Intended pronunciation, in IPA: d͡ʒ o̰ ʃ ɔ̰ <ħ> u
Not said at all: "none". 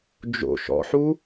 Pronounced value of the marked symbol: ħ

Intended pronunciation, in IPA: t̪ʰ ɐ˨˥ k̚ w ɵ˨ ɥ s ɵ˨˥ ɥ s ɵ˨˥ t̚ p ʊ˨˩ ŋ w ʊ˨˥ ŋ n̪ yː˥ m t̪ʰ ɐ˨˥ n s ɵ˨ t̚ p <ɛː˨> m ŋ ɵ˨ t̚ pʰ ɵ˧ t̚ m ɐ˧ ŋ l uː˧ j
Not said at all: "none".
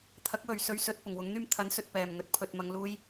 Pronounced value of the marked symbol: ɛː˨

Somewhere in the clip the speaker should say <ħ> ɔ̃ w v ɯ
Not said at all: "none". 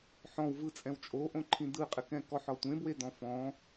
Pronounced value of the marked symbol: ħ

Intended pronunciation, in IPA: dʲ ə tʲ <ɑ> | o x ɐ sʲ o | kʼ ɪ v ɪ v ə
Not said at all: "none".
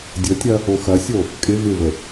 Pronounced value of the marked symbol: ɐ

